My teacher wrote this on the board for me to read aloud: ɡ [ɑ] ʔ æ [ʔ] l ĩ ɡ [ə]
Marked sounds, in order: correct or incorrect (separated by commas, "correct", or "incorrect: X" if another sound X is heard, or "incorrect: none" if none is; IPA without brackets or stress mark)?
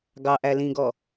correct, incorrect: none, incorrect: ɔ